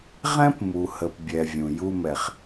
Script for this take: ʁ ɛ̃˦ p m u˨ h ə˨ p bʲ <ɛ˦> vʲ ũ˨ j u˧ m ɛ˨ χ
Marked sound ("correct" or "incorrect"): incorrect